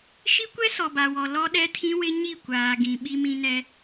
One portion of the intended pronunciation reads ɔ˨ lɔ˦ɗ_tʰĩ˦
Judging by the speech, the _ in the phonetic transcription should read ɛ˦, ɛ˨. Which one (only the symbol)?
ɛ˦